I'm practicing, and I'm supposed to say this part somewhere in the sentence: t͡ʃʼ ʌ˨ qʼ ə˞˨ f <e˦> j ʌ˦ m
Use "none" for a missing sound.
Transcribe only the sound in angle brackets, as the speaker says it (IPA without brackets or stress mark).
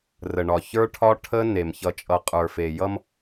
e˨